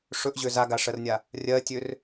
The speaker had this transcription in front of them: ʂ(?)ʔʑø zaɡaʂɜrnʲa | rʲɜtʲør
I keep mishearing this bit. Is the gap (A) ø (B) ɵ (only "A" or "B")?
B